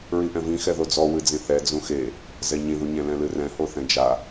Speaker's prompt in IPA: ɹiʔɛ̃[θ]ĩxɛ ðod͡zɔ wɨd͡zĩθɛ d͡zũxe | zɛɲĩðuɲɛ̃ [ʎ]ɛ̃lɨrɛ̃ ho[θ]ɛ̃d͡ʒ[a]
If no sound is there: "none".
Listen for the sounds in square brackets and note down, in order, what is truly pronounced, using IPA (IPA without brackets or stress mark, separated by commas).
v, l, θ, a